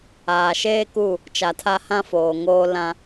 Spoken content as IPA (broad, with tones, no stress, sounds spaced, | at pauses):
aː˨ ʃ eː˦ k u˦˨ | t͡ʃ a˨ tʰ a˦ h ã˦ f oː˨ ŋ oː˦ l ã˦